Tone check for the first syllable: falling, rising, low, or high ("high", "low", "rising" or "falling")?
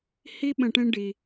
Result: high